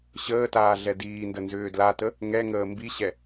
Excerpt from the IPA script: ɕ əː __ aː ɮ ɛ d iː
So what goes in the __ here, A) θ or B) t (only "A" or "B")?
B